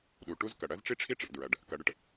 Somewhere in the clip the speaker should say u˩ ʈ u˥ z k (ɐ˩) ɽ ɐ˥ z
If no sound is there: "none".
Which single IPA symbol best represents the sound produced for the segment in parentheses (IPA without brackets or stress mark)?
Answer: ɐ˩